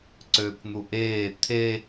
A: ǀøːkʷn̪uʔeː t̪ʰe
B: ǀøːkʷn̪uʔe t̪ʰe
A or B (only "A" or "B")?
A